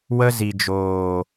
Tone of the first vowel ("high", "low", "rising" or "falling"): high